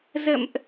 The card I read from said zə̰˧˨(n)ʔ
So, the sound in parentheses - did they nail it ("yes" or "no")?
no